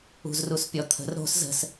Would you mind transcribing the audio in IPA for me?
ṳ z r u s pʲ ɔ t̪ʰ ə̤ r ɾ o̤ s z ə̤ s

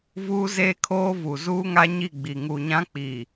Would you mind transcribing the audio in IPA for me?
v uː˦ z eː˦ kʰ oː˦ v u˨ z uː˦ ŋ a˦ ɲ i˦˨ ɡ͡b i˨ ŋ u˨ ɲ ã˦ k͡p iː˨

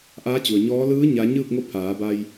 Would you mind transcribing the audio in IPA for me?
ʔ aː˧˥ t͡ɕ u˩ ə̯ ɲ ɔː˧˥ l ɯː˧˥ ɲ a˧˥ ɲ ɯː˥˨ k̚ ŋ o˥˨ pʰ aː˩˧ b a˧ j

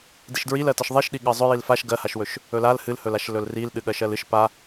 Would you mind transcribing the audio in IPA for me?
d i ʃ d ɹ i l ɜ t ə ʃ ðˤ i ʃ ɗ i ɠ ɜ zˤ ɵ j i l f a ʃ ɡ ɜ h a ʃ w ɵ ʃ | ɵ l a l h ɨ l h ɵ l a ʃ l ɵ l r i l ɗ ɨ ɠ ɜ ʃ ɜ l ɨ ʃ p a

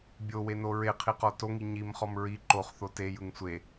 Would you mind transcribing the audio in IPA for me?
bʲ o w e n o ɹ e qʰ i q ɔ t o ŋ i ɲ i m χ ɔ m ɹ i ǃ o χ θ o t e j ɯ ŋ sʷ e

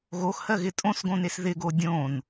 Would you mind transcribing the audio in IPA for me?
ɣ o x h ɜ ɣ ɪ tʼ õ s ɡ õ n e s ð ɪ ɡ o dʲ õ n

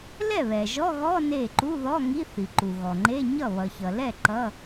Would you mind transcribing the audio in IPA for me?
l ɛ˥˩ β ɛ˩ ʒ ɔ˧˥˧ ɣ ɔ˧˥˧ n e˥˩ ǃ u˧˥˧ ð ɔ˧˥˧ ŋ i˧˥˧ θ i˩ ǃ u˩ ɣ ɔ˩ ŋ͡ǃ e˧˥˧ ɲ ʌ˥˩ β ʌ˩ ç ʌ˩ l ɛ˥˩ ǃ ʌ˧˥˧

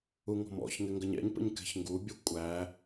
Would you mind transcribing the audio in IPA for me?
u ŋ ɔ̤ m ɔ̰ ç ŋ ɪ ŋ ɡ ə ɲ ɛ̰ ɲ p ə̰ ɲ k ɛ̤ ç ŋ ɡ u bʲ ə kʷʼ æ

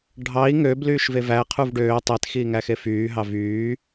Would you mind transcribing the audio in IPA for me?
ɖʱ ɑ i̯ ŋ ø b l yː ʃ v e v æ qʰ u v ɖ øː tˤ e t x iː ŋ æ x e f yː ɦ ɑ v yː

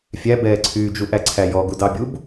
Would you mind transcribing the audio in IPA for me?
fʲ æ b ɛː ǀʰ yː d͡ʒ u ʔ æ ǀʰ æ j ɔ ɡ u d ɑ bʲ u b

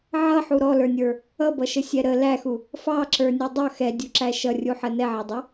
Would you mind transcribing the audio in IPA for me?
ʕ ʌ ħ u ɾ ɔ l ə˞ nʲ ə˞ | ʌ b ʌ ʃ ə sʲ ɛ ɾ ə l æ x u | f ɑ ǁ ə˞ nʲ u dˤ ʌ x ɛ dʲ u ǁ æ ʃ ʌ rʲ u ħ ə n ɛ ʕ ʌ dˤ ʌ

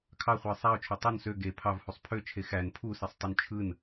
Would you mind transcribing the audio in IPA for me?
kʰ ɑ χʷ ɯ ɪ̯ sˤ æ ʊ̯ t͡ʃʰ o tˤ o n s ø ɡ e pʰ ɑ v h u sˤ pʰ ø t͡ʃʰ e x æ n pʰ u s i sˤ tˤ u n t͡ʃʰ ɯ n

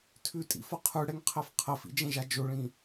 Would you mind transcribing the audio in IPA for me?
tʰ ʉ tʼ ḭ f ʌ qʰ ʉ ɽ ɛ ŋ qʰ ɛ f qʰ ə f ḭ d͡ʒ ɛ̃ ʒ a d͡ʒ o ɭ ĩ

